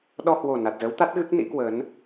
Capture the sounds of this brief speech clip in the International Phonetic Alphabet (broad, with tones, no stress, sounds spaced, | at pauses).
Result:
ɗ ɔ˧ h w o˨˩ n a˨˩ t̚ z ə˨˦ w t̪ a˦˥ t̚ ɣ ɨ˦˥ k̚ n ḭ˧˥ k w əː˨˦ n